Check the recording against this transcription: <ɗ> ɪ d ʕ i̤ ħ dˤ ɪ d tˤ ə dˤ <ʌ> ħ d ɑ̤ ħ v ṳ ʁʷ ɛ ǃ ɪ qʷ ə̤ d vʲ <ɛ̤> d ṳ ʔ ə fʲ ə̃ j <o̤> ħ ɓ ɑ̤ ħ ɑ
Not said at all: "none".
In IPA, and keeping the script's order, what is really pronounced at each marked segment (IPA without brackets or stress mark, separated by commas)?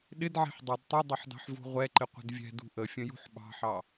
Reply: ɗ, ʌ, ɛ̤, ṳ